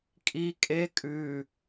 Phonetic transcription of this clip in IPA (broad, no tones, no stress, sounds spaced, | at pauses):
kʼ i kʼ e kʼ ʉ